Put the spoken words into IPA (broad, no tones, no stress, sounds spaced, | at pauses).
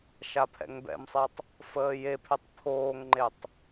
ʃ a pʰ ɛ̰ ŋ b ɛ̰ m sˤ ɛ tˤ | f əː j e pʰ e tˤ pʰ oː ŋ ŋ͡ǃ e tˤ